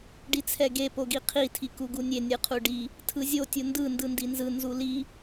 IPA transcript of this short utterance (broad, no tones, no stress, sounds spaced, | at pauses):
ɖ i t͡sʰ ɛ ɡ e p o ɡ i qʰ i tʰ i k u ɡ u nʲ e nʲ ɯ qʰ u ɖ i | tʰ ɯ zʲ o tʲ u n d ɯ n d ɯ n d i n z ɯ n z u l i